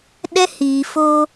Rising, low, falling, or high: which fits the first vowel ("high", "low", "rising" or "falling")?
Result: high